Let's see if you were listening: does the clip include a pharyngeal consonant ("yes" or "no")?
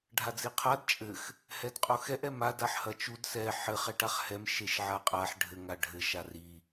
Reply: yes